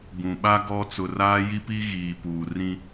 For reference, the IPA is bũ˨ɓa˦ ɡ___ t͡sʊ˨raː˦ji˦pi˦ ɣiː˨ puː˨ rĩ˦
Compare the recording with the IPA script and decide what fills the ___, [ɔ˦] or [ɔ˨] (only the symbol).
ɔ˦